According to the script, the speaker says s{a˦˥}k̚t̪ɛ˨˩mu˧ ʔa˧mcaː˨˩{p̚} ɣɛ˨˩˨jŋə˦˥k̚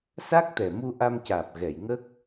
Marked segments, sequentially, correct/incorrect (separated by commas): correct, correct